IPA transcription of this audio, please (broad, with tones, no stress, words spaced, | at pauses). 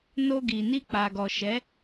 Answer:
no˧ɡi˨ ni˧k͡pa˨ɡɔ˨ʃɛ˨˦